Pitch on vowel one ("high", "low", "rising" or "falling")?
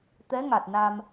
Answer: rising